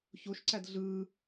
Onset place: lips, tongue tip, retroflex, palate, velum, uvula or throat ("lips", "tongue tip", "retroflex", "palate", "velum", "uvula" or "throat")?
palate